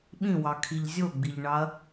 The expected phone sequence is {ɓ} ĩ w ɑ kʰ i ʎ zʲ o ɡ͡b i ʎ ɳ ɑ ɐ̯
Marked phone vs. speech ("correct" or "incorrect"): correct